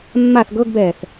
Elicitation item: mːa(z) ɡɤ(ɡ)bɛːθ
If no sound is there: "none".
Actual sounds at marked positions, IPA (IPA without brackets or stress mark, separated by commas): θ, ɡ